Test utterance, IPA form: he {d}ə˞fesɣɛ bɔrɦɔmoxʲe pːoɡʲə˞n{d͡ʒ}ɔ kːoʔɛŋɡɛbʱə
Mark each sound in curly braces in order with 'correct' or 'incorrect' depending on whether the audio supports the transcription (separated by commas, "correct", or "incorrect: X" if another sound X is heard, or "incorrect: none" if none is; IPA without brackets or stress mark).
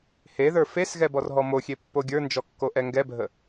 incorrect: ð, correct